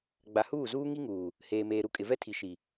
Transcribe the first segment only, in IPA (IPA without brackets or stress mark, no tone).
ɡ͡b